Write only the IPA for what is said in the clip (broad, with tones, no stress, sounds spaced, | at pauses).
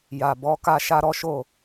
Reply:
j a˨ b ɔ˨˦ k a˦ ʃ a˦ ɾ ɔ˦ ʃ o˦˨